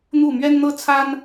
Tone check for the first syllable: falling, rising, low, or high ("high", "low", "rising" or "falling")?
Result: falling